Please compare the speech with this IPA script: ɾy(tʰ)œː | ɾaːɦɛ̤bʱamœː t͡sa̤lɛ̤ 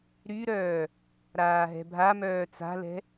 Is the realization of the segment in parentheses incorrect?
yes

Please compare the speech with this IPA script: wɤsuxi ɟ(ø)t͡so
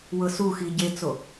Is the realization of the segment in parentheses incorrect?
yes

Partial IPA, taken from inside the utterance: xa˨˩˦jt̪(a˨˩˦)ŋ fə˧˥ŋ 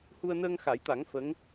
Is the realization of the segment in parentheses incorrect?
no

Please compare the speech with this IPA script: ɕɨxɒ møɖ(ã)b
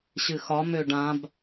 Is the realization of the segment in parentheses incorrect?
no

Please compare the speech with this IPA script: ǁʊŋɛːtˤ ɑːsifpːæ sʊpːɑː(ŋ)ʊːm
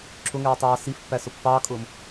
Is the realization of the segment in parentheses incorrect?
yes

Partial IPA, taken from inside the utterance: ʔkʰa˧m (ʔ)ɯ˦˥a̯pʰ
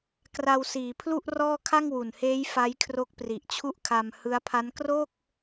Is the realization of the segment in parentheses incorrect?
yes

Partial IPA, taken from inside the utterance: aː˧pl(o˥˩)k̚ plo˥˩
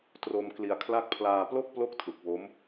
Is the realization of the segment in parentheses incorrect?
no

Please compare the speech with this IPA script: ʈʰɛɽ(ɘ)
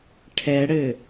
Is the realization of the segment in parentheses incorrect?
no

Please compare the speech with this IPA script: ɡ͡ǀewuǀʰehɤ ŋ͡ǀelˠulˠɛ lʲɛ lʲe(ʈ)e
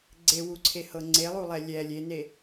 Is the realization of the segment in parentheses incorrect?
yes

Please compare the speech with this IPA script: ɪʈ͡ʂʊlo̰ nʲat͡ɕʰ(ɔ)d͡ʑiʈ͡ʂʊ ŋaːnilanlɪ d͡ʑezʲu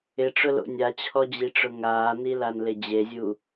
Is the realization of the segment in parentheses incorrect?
no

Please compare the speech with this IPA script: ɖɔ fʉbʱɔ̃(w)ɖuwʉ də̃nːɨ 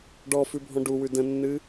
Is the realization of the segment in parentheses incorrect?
yes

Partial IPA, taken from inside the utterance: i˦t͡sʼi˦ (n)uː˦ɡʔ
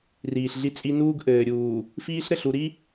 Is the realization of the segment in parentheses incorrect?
no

